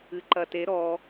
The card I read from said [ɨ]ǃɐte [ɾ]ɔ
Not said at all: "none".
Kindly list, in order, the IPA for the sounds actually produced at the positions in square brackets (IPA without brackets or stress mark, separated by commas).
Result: ɨ, ɾ